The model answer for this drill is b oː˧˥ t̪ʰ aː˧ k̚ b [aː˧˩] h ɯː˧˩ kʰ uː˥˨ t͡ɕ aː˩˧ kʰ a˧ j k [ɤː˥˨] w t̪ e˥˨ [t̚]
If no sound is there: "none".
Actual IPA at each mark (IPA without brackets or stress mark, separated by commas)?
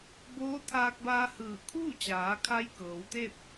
aː˧, ɤː˩˧, p̚